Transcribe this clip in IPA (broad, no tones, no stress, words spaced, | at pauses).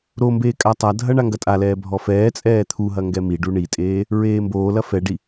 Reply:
ɾombeː kʼatˤadʱɐ ɳaŋɡɐtʼalɛː bʱɔfɛːt͡sʼɛː t̪ʰuɦɐ ŋɡɛmiɖu ɳitʼeː | ɹeːmboːlɐ fɛɖi